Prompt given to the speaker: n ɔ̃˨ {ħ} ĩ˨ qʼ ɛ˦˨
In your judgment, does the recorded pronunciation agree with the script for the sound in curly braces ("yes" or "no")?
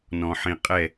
yes